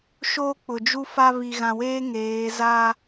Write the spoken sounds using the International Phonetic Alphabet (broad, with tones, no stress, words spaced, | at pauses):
ʃoː˦k͡pʊ˨d͡ʒu˦fa˦ βi˨ɣã˨weː˦ ŋeː˨˦za˦